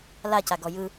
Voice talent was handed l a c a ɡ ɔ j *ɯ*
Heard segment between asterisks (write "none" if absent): ɯ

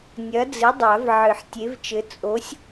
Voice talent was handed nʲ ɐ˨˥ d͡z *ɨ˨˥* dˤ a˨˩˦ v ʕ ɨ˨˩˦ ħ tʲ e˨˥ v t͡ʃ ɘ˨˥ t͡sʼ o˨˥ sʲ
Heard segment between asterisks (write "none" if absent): ɨ˨˥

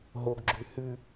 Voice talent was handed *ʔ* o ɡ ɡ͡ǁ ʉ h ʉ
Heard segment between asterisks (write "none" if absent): ɦ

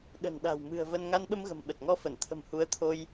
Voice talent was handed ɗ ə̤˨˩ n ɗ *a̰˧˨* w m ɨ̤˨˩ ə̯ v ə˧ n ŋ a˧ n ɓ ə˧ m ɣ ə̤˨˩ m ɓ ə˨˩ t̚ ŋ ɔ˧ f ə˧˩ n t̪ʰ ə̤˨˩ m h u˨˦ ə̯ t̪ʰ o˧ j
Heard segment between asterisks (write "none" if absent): a̤˨˩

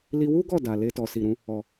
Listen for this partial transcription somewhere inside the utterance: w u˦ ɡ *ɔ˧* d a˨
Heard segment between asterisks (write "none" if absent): ɔ˦˨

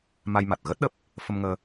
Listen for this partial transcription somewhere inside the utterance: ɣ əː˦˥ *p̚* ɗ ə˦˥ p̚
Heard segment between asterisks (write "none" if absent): t̚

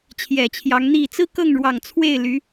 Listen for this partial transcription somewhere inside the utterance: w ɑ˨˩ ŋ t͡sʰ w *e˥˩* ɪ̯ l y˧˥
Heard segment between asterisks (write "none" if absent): e˥˩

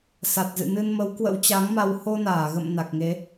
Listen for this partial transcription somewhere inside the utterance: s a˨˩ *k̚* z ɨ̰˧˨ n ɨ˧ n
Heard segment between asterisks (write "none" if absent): t̚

